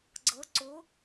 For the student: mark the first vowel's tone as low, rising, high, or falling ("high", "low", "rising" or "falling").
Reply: rising